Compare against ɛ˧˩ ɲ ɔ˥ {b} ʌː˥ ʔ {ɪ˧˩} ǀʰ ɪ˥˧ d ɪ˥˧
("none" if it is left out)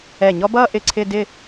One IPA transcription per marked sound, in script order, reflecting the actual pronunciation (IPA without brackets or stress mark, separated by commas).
b, ɪ˧˩